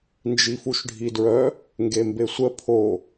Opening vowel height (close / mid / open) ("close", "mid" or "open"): close